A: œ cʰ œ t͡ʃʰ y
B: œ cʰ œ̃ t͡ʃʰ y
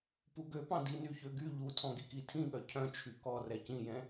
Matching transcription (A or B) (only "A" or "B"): B